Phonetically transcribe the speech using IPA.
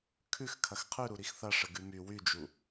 kʰ ʉ x kʰ ɐ x qʰ ʉ ɾ u ɾ i x θ ɐ ʂ ə ɡ ʉ m y w y d͡ʒ u

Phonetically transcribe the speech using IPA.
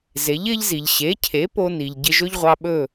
z e˩˥ ʎ ɪː˥ ʎ z i˩ ʎ ɕ e˩˥ cʰ e˩˥ p o˥ n i˩ ʎ ɟ ɪ˧ ʒ ɵ˥ ʎ ʁʷ ɑ˧ ɓ ɵ˥˩

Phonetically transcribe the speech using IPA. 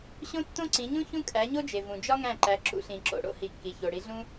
ɕ õ˦ tː õ˦ ǀ ĩ˩˧ ɲ ũ˦ ç ũ˦ kʼ æ˩˧ ɲ o˦ d͡ʒ e˩ v ũ˩ d͡ʒ ɒ˦ ŋ æ̃˧˩ ǃ æ˩˧ ǁ ṵ˩˧ ɬ ĩ˩ ǁ o̰˩ ɽ o̰˦ h i˩˧ kː i˩ ç o˩ ɽ i˩˧ ɮ ũ˦

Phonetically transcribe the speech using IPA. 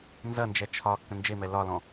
n z ɐ n d͡ʒ ɛ t͡ʃʰ ɒ kː ə̃ n d͡ʒ e m ɛ l ɒ l ɔ̃

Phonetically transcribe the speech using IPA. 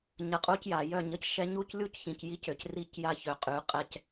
ɲ ə˨ qʼ u˦ c j a˨ j œ˦˨ ɲ ə˨ c ʃ ɛ˦ ɲ u˦ c lʲ u˦ c ç ĩ˨ c j i˦ c ø˨ c r i˦ c j a˦ ç ø˨ qʼ y˨˦ qʼ ɛ˦ c

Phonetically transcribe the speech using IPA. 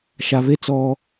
ʃ a˩ v e˧ t͡s ɔ˩

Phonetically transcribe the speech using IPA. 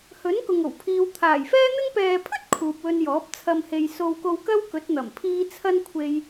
h ɵ˨˥ n k ʊ˨ ŋ o˨˩ w pʰ iː˨ w t̪ʰ aː˨˩ j f ɛː˥ n̪ ɪ˧ ŋ p ɛː˨ pʰ ɵ˥ t̚ kʰ uː˨ p̚ w ɵ˧ n j ɔː˨˥ p̚ t͡sʰ ɐ˧ m h e˨ j s o˧ w k o˧ w k ɐ˥ w k ɵ˨˥ t̚ n̪ ɐ˨˩ m pʰ iː˥ t͡sʰ ɐ˥ n kʷʰ e˧ j

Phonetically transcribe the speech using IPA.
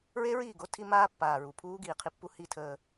ɹ e˦ ɹ iː˦˨ ɡ o˦ tʰ i˦ m aː˦ pː aː˨ ɹ u˨ pʰ uː˦ ɡ iː˨ qʰ i˦ pː u˦ h i˦ tʰ əː˦

